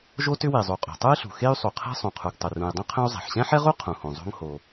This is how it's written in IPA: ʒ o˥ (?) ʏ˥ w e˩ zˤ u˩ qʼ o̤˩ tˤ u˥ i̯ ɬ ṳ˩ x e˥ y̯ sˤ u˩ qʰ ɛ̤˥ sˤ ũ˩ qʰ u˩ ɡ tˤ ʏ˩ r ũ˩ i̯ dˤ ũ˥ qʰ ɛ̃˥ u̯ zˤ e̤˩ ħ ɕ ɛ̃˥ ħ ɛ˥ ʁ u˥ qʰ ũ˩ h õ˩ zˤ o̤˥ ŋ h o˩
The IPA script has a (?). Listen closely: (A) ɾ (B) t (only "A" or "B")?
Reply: B